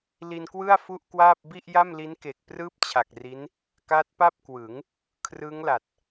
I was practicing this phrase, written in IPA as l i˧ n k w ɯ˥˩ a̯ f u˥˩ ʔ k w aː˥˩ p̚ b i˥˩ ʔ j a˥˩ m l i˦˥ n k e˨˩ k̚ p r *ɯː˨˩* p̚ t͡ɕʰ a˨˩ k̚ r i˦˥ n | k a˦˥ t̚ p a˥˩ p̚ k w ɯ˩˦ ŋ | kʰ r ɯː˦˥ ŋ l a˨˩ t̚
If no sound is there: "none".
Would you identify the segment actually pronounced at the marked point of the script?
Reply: ɯː˥˩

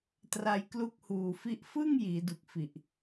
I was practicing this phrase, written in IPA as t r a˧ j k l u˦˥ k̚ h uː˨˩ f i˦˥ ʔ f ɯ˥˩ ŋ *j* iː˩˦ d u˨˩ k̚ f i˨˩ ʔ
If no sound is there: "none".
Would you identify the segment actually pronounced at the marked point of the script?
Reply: j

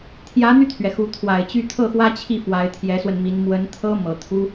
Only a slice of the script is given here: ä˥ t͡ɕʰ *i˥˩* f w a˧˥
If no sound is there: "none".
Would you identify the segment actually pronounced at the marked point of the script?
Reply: i˥˩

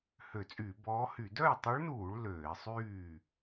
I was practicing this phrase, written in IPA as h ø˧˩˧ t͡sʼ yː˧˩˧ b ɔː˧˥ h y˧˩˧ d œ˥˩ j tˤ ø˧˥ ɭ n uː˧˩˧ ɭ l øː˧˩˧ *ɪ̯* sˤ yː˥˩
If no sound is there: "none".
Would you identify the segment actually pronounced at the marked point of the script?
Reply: ɪ̯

